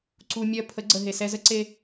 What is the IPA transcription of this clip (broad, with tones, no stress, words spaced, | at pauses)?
ǀu˧ mʲɜ˧ pʰə˨˦ɡ͡ǀə˨ ɦe˨sɛ˧zə˦ǀe˧